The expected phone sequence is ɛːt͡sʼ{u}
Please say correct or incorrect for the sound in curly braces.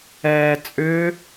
incorrect: ʏ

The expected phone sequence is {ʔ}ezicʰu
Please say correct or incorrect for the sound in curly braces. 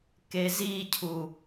incorrect: k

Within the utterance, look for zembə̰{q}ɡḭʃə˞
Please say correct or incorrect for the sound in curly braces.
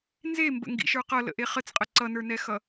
incorrect: ŋ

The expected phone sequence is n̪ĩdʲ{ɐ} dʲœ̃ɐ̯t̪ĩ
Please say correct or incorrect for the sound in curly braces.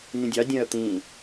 incorrect: ɑ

